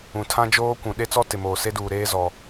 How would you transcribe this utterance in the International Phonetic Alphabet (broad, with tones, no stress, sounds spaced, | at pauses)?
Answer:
ũ˨ tʰ ã˦ d͡ʒ oː˦ kʷ ũ˨ ɗ e˦ t͡s ɔ˦ t ɪ˨ m oː˨ s e˦ d uː˨ ɾ eː˦ z ɔ˦